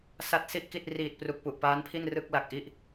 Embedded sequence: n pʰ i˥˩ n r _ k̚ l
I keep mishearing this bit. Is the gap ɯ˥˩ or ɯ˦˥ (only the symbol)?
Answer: ɯ˥˩